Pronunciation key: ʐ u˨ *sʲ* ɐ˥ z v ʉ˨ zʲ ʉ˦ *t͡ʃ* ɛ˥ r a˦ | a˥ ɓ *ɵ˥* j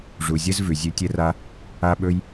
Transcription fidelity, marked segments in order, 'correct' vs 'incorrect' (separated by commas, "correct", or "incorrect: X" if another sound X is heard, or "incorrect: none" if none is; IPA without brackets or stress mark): incorrect: zʲ, incorrect: tʲ, correct